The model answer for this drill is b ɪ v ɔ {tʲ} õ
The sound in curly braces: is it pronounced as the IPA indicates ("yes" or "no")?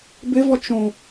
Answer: no